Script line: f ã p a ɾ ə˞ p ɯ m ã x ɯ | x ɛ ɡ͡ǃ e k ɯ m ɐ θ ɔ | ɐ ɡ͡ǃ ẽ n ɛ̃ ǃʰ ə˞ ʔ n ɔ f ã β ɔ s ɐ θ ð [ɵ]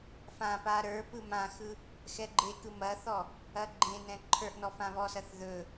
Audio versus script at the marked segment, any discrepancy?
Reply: no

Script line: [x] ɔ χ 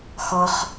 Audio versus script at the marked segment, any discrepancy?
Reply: no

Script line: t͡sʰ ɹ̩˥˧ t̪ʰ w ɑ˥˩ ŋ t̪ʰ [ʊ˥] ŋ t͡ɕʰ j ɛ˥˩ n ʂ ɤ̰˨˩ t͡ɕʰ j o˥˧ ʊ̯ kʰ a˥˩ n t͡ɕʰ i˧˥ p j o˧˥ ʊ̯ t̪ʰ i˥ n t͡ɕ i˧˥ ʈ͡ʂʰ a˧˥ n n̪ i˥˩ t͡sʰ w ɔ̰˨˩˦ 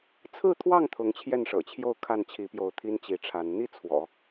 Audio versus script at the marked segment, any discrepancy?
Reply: yes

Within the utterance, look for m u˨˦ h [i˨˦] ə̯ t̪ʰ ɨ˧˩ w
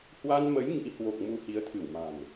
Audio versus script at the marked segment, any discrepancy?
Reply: no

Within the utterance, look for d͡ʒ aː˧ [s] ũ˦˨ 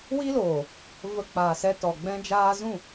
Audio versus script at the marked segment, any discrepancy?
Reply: yes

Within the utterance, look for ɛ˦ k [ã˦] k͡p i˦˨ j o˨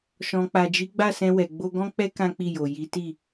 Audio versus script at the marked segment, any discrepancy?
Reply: no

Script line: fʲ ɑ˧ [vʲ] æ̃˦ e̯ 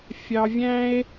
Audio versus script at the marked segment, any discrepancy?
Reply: no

